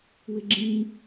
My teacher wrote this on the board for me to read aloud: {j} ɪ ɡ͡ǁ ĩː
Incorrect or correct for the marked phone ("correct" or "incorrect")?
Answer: incorrect